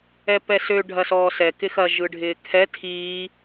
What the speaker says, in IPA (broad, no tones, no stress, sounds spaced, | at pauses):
ɛ p ɛ s ø ɖʱ ɐ s ɔː s ɛ k ɪ x ɐ ʒ ɯ ɖʱ ɪː kʰ ɛ tʰ iː